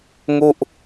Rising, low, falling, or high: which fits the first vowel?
falling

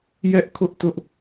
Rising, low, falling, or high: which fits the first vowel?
high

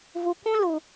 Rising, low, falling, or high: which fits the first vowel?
low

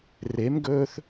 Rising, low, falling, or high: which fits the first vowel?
rising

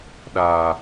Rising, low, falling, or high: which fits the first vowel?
low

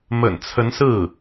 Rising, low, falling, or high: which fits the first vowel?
low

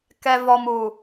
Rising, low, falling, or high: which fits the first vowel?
low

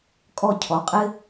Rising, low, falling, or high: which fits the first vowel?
falling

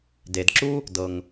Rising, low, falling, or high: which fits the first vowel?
low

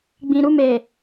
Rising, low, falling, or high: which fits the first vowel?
low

